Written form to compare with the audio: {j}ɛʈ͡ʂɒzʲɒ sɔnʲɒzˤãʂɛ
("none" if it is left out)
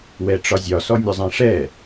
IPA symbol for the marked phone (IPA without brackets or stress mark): w